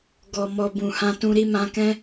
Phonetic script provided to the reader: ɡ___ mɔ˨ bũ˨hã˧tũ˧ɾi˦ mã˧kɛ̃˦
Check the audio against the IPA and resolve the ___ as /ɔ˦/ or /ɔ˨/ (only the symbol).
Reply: ɔ˨